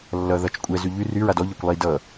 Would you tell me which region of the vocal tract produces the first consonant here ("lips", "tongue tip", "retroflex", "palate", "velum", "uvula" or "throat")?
tongue tip